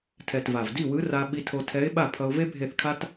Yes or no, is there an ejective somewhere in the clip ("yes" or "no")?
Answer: no